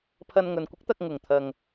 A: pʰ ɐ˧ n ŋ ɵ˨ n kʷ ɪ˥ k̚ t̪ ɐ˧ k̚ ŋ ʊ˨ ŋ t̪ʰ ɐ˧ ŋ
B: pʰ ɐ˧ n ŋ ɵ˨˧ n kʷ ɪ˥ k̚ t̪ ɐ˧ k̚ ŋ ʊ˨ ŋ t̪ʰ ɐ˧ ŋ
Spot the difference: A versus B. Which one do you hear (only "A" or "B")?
A